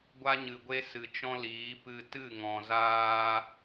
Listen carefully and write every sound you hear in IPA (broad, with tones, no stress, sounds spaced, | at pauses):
ɡʷ a˦ ɲ ɨ˨ ɡʷ e˦ s ɨ˨ t͡ʃ ɔ̃˦ l iː˨˦ p ɨ˧ t ɨ˦˨ ŋ ɔ̃˨ z aː˧